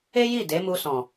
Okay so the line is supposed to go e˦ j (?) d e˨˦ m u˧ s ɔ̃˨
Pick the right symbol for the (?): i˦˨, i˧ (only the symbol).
i˦˨